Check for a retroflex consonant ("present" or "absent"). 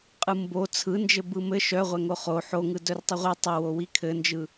absent